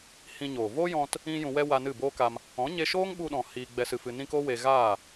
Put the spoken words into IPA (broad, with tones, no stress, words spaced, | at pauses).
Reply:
hĩ˧ɲoː˨ voː˦jɔ̃˧t | ĩ˦jũ˧wɛ˦ wa˧nɨ˦˨boː˦ka˧m | ɔ̃˨˦ɲe˧ʃoː˦ŋ ɓu˧ɗɔ̃˨ hiː˧ɡ͡bɛ˧sɨ˧fɨ˧ nĩ˧ ko˦we˧ ɣaː˦˨